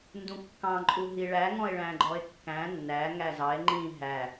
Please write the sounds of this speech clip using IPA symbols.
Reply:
ndũkːɑ̃ ǃʼuɦiɭæ ŋɔ̃e̯ɭæ̃ɡ͡ǃɔe̯kːæ̃ nːæ ŋæzɑe̯ ŋ͡ǃĩ ɦæ

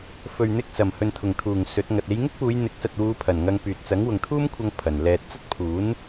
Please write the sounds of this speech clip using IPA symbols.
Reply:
fɵ˨ɥn̪ɪ˧k̚sɐ˨˩m hɵ˨nt̪ʰʊ˨˩ŋt̪ʰuː˨˩ŋ sɵ˨˥t̚ŋɐ˨t̚ e˨˧jŋɪ˥k̚puː˨˧j n̪ɪ˨˥k̚sɐ˨t̚wuː˨˧ pʰɐ˨˩nŋɐ˧ŋpyː˨t̚ t͡sɐ˨˥ŋwʊ˨ŋt̪ʰuː˥mkʷʰɐ˧ŋ pʰɐ˨˩nlɛː˧t̚ t͡sɐ˥t̚pʰuː˨˥n

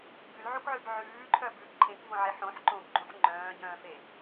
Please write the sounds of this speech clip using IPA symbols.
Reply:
bʉlʕukʕʉb ʕʉːǃʰœbʉːb ǃʰẽkvõʕeħ õħ ǃõbɡ͡ǃũħ ŋ͡ǃœ̃ːɟœ̃ːfe

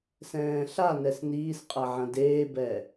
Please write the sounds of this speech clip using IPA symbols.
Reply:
sɛ̃ːɬanɛs niːsqʼɐ ʕɐ̃deːbɛ

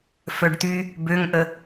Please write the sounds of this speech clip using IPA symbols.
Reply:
fœɖt̪y | bøŋʔə

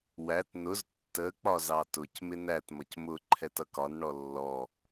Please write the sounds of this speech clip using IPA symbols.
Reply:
wæt nʊz tːə k͡pɒzɑtʊc mɪnæt mʌcmʊ ǃʰɛtʌkɒn ɳɔlːɔ

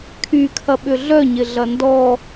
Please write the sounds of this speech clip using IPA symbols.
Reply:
kʰykʰɐ ɓʏɮœɲɪ ɮɐndɔ

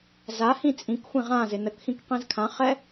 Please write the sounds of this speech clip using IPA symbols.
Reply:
zahĩ t͡sʼĩk xʷĩʁãzɪ nəkxĩk qĩzkʰãχɛ

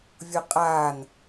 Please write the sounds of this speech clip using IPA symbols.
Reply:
vʲoqʼaːn

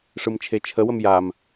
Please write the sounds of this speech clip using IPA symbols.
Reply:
ʂɯmt͡ʃʰet͡ʃʰəwəm jam

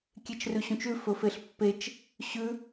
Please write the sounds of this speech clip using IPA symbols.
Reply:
kʲet͡ʃrʉɕũt͡ʃʉ fɵfeɬpːet͡ʃ | ɕʉ

